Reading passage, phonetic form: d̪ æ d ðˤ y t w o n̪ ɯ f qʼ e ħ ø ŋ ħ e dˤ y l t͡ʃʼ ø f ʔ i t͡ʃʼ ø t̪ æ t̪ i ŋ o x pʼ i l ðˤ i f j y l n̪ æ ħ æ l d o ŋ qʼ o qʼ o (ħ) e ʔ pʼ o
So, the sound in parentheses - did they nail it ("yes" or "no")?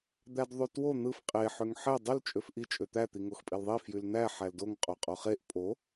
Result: no